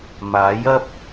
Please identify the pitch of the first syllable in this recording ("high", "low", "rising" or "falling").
rising